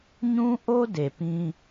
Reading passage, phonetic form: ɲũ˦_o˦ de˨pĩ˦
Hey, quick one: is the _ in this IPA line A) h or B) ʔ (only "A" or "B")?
B